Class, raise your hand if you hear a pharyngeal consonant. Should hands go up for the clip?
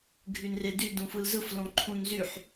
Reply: yes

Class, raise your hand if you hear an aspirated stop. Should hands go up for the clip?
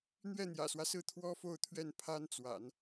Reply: yes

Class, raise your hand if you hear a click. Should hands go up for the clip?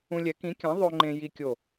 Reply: yes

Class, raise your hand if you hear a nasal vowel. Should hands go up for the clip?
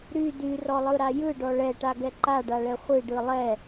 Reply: no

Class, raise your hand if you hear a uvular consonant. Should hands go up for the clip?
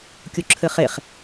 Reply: yes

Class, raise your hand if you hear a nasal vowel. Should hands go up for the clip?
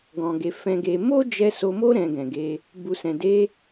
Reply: yes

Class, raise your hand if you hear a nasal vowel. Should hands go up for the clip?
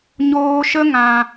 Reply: yes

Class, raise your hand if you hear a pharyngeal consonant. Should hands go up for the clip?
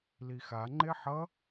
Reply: yes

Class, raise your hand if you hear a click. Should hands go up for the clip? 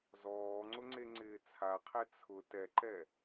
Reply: yes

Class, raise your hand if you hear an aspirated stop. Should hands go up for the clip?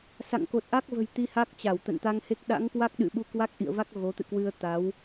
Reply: no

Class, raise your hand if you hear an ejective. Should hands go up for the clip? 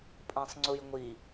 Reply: yes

